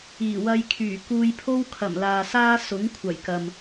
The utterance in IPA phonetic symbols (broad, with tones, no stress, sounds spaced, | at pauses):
iː˨˩ w ɐ˧ j kʰ yː˨˩ k uː˧ j pʰ o˥ w kʰ ɐ˨˩ m l aː˨ s aː˥ s ʊ˨˥ ŋ kʷʰ ɐ˨˩ j k ɐ˨ m